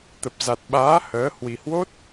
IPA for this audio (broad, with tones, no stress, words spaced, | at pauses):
t̪ə˨˩p̚ za˨˩t̚ɓaː˨˦ həː˨˦ hwi˨˩hwo˦˥t̚